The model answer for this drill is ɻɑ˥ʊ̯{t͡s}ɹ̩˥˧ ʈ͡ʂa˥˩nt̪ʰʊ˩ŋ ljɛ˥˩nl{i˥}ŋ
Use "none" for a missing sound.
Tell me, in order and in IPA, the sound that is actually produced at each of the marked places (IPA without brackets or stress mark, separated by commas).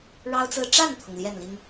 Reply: t͡s, i˥